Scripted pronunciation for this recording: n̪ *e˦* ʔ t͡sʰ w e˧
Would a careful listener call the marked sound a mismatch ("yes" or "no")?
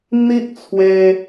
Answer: yes